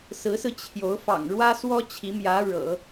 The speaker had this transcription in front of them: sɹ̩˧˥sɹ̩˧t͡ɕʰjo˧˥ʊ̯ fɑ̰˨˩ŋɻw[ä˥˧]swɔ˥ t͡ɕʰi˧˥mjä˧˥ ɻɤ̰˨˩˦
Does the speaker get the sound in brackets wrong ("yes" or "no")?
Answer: yes